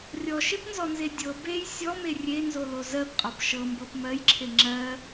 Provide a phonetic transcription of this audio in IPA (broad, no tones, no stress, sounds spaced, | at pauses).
rʲ ɔ ʃ e p n z ɔ n z e dʲ ɤ b e j sʲ ɔ m e rʲ e n z o l o z ɜ p qʼ ɔ p ʃ ɤ m b ɤ p m ɜ j ǁʰ e ŋ͡ǁ ɜ